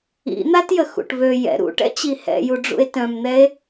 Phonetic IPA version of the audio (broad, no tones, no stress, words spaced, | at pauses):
ḭn̪atjə xṵʈβø jɛ̰ ɾṵʈɛ̰t͡ɕi hɛ̰ju ɖ͡ʐṵe̯tœ̃mn̪ɛe̯